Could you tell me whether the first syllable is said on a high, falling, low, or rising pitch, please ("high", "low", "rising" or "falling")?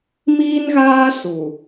high